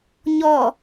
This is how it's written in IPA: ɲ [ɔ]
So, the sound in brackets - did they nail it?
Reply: yes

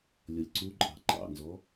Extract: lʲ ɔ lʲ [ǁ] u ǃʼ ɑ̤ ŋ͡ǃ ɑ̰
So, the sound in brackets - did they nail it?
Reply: no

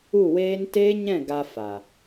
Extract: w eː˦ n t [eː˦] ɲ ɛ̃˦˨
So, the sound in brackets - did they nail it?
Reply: yes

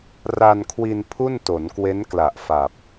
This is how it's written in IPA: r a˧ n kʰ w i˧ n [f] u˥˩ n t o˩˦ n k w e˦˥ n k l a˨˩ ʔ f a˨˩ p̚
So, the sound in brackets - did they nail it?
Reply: no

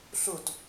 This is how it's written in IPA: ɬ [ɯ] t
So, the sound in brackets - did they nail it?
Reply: no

